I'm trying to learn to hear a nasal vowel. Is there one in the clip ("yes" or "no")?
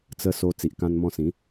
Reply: yes